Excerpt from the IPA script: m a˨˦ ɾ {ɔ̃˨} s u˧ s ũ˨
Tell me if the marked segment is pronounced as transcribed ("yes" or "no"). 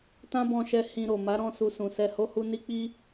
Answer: no